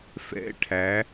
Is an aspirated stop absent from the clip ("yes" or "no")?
no